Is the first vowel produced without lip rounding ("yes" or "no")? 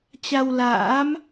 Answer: yes